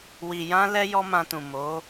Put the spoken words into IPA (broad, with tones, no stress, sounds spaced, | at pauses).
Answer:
w i˨ j ã˧ l ɛ˧ j ɔ˦ m ã˧ t ũ˨ m o˨˦